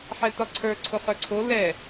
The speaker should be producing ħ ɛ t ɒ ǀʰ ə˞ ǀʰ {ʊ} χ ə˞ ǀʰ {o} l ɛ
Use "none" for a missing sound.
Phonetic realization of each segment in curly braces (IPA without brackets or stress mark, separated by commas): ʊ, o